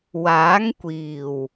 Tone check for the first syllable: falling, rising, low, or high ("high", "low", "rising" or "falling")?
rising